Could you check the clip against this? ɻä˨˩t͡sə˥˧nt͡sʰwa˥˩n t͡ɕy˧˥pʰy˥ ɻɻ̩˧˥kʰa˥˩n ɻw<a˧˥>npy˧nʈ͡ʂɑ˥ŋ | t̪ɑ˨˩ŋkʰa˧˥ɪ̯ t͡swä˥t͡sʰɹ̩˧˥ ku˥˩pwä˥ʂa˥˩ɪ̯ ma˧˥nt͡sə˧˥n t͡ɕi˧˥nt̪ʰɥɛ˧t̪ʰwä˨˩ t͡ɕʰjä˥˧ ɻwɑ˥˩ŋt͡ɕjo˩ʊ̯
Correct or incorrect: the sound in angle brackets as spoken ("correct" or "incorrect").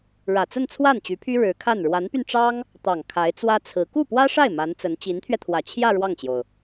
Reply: correct